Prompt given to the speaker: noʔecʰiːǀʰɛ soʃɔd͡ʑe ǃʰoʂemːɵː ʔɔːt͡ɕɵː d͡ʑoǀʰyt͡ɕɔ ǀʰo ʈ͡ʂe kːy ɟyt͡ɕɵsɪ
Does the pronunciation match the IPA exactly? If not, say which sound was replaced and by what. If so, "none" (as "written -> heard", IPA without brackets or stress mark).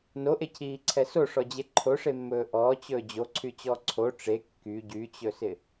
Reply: ʃ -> ʂ